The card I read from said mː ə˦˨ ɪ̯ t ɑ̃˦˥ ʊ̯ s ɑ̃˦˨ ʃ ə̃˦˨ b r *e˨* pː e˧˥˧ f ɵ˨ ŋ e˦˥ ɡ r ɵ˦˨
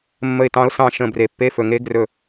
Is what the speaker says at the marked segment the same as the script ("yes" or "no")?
yes